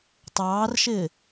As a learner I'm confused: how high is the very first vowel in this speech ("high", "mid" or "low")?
low